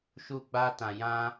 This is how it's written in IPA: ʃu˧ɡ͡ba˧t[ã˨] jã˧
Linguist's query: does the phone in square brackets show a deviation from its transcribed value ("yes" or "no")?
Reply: no